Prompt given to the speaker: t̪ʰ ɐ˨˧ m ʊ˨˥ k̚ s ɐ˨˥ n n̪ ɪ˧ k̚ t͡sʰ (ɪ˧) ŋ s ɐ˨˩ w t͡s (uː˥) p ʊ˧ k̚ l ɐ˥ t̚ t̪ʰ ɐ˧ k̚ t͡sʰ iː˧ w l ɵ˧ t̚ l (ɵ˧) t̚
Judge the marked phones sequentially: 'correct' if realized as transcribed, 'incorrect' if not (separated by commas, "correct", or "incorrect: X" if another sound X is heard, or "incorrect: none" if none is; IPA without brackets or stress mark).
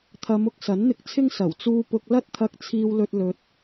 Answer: incorrect: ɪ˥, incorrect: uː˧, correct